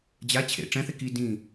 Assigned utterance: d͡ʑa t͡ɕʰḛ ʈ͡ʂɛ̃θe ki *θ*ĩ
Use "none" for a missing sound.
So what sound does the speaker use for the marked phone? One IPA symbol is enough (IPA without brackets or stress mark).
d